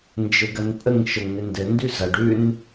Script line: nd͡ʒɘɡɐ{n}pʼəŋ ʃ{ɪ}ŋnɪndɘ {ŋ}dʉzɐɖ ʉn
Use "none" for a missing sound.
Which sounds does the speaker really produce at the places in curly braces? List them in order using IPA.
n, ə, n

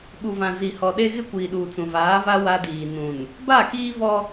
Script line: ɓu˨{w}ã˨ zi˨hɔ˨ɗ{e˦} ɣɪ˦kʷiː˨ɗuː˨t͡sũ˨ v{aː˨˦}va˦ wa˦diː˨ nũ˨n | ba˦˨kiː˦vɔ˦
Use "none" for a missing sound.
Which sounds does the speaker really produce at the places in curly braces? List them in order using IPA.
v, e˦, aː˨˦

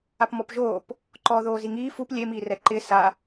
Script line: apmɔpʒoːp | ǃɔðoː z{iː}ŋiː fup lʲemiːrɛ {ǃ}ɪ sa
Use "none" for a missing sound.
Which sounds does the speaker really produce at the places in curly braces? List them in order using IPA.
i, ǃ

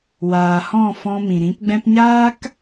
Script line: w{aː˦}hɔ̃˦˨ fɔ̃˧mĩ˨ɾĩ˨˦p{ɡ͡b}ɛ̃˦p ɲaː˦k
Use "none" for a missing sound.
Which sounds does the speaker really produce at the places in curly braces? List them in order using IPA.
aː˨, ɡ͡b

